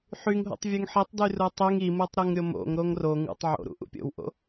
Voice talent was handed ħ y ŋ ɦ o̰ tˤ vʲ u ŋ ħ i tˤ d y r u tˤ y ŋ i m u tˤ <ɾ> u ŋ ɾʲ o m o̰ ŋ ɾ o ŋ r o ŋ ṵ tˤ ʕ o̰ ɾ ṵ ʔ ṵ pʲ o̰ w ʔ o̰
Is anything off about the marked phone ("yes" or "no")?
no